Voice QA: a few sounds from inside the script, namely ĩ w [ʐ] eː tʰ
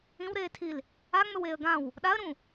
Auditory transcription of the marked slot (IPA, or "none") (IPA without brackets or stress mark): ɾ